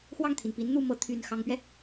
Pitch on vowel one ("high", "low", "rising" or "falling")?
falling